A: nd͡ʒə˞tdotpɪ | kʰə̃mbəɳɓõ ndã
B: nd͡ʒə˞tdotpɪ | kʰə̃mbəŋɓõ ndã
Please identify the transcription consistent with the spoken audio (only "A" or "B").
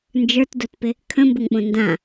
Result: B